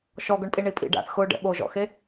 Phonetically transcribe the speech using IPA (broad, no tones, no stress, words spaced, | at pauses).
ʃɔɡʊɳpʼi ɳipʼḭ ɖa̰θ xʊ ɖɛ̰ɓoʒɔ̰xe